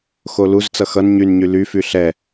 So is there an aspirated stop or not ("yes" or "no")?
no